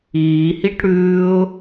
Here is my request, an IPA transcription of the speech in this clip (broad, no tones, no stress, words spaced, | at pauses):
iːhiʈ ɽʉːʊ̯